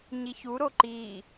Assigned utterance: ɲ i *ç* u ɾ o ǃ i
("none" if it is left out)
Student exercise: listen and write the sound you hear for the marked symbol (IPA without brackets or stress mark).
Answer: ç